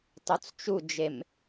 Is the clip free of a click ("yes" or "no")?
yes